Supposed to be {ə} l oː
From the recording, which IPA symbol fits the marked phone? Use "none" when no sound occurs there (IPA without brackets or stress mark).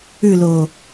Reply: ʉ